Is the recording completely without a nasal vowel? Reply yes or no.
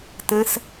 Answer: no